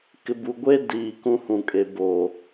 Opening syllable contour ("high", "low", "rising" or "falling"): low